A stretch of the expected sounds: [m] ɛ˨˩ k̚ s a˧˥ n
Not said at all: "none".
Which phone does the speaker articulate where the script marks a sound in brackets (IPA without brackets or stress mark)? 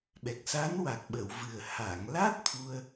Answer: ɓ